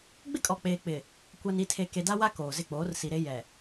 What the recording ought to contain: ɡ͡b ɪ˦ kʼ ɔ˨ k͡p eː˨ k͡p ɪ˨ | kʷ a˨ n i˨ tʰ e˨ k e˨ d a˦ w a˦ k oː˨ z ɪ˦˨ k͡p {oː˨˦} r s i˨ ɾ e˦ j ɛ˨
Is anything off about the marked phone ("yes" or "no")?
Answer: no